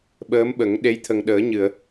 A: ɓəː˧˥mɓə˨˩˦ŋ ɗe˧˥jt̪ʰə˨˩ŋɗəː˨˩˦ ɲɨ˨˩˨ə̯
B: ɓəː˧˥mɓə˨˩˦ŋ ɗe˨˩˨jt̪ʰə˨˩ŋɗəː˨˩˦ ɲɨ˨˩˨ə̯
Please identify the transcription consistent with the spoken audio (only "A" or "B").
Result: A